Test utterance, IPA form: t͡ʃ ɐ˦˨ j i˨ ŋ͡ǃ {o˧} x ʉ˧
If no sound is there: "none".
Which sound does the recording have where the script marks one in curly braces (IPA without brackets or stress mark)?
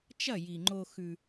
o˧